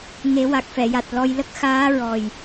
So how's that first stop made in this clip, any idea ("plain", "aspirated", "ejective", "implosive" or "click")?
plain